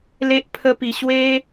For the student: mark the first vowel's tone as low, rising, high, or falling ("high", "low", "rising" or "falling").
high